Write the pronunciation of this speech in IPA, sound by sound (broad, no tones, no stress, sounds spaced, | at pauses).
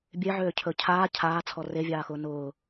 bʲ e ʕ øː cʰ ɵ cʰ aː cʰ aː t͡sʰ ɔ r e vʲ aː x ʊː n ʊː